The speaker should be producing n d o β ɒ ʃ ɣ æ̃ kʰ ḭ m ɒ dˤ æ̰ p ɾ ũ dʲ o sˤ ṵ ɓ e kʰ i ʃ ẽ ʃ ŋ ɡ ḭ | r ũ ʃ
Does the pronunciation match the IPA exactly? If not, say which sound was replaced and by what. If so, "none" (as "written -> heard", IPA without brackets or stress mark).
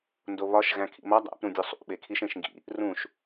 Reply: none